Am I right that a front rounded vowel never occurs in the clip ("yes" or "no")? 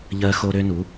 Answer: no